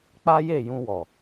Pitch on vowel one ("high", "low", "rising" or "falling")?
high